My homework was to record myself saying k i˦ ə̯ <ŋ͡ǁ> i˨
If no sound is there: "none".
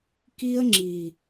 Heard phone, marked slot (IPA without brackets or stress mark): ŋ͡ǁ